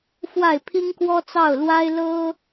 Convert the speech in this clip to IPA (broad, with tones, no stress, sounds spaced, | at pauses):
f w a˥˩ ɪ̯ pʰ i˥ ŋ k w ɔ˥ t͡s ɑ˥˩ ʊ̯ l w a˥ ɪ̯ l ɤ˥